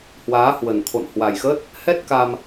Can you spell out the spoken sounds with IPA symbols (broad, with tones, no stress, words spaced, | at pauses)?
hwaː˨˦hwə˨˩nt̪ʰo̰˧˨n hwa˨˩jxə˦˥t̚ | hɛ˦˥t̚ka˧m